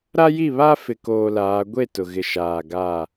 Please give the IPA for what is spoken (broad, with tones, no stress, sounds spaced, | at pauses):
ɾ a˦ j i˦˨ β a˦ f ɪ˨ k oː˨ l aː˨˦ ɡʷ e˦˨ t ʊ˨ ɣ ɪ˨ ʃ aː˨ ɡ a˦˨